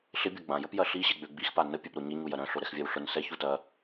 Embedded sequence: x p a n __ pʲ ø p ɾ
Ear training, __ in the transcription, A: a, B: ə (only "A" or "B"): B